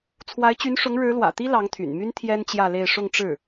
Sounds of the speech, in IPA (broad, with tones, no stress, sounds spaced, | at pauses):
t͡sʰ w a˧˥ ɪ̯ t͡ɕ y˧˥ n ʂ ʊ˧˥ ŋ ɻ ɻ̩˧˥ l w ä̰˨˩ t̪ i˥ l ɑ˧˥ ŋ t̪ʰ y̰˨˩ n m y˥ n t̪ʰ j ɛ˥ n t͡ɕ j ä˥˧ l e˥˧ ɪ̯ ʂ ʊ˥˧ ŋ ʈ͡ʂ ɻ̩˥˩